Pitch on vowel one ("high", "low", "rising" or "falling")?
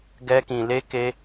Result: high